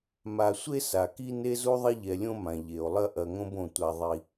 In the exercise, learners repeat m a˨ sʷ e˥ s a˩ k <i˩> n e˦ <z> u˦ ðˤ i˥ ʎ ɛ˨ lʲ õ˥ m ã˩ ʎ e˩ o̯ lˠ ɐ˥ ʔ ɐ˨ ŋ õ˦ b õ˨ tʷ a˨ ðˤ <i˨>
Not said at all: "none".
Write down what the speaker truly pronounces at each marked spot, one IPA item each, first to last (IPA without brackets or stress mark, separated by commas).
i˥, z, i˨